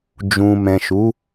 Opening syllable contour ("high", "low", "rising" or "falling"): low